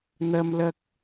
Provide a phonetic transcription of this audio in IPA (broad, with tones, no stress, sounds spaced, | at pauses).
n̪ ɐ˥ m l ɐ˥ k̚